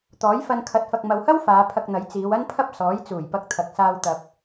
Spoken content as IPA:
t̪ɔː˨˥jfɐ˧n kʰɐ˨˥t̚fɐ˨k̚mɐ˨whɐ˥w faː˨˧pʰɐ˧k̚n̪ɐ˨˥j t͡siː˨˧wɐ˥npʰɐ˥p̚ sɔː˨˥jt͡suː˨˩jpɐ˧k̚t̪ʰɐ˨k̚ saː˧w t̪ɐ˧p̚

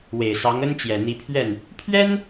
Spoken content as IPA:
we˨˩ɪ̯sɑ˧˥ŋə˥n t͡ɕjɛ˨˩n̪i˧˥pʰɥɛ˥˩n | pʰɥɛ˥n

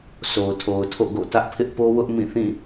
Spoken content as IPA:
so˨ʊ̯tʰo˨ʊ̯tʰo̰˦˨ ɡo̰˦˨tä˦ʔ pʰɪ˦ʔpo˦wʊ˦ʔ mĩ˦˨ θĩ˦˨

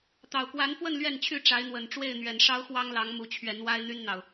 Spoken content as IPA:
t̪ɑ˨˩ʊ̯kwa˨˦nfwə˥˨n lɥɛ˥˨nt͡ɕʰy˥˨ ʈ͡ʂa˨˦ɪ̯n̪wə˨˩n ʈ͡ʂwe˥˨ɪ̯n̪ɥɛ˨˩nʂɑ˦ʊ̯ xwɑ˦ŋlɑ˨˦ŋ mu˨˦t͡ɕʰɥɛ˨˦n wa˦ɪ̯n̪y˦nn̪ɑ˨ʊ̯

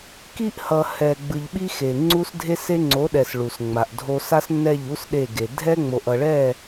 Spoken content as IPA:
ki˦ʔhʌ˨ hɛ˨ɡ͡bɯ˨ʎɓi˦ xe˨ ŋ͡ǀu˦sdʱe˦se˦ ŋ͡ǀo˨˦ɗɛ˨s ɭu˨sŋ͡ma˨ʔdʱo˦ sa˦snːɛ˦˨ʎu˦s ɗe˦˨ɡe˨ dʱɛ˦ŋ͡mo˨ʔʌ˨ɭɛ˦˨

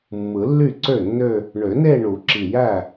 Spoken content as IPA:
mːɯ˨˩˦lːy˥˩ǀø˥˩nːø˥˧ | ɳø˨˩˦ne˥˧ɳu˨˩˦ǁi˨˩ jæ˥˩

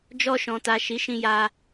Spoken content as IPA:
d͡ʒɔ˧ʃɔ̃˨ta˨ ʃi˨˦ʃĩ˧ja˧

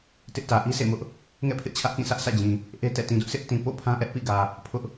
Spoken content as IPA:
tɪ˦ʔtä˨ ʔi˦sʰḛ˦˨mʊ˦ʔ | ŋɛ̰˦˨pʰɪ˦ʔt͡ɕʰä˦ʔkĩ˦˨ sʰä˦ʔsʰä̰˦˨d͡ʑĩ˨ | ʔe˦tɛ̰˦˨ tĩ˨dʊ˦ʔsʰɪ˦ʔ tĩ˨ po̰˦˨ pʰã˦ʔɛ˦ʔpḭ˦˨ɡä˨ | pʰʊ˦ʔ

